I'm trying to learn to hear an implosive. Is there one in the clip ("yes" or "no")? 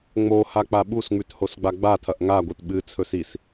yes